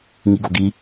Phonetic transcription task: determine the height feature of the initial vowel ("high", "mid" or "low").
high